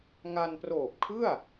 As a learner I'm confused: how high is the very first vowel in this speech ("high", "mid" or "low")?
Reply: low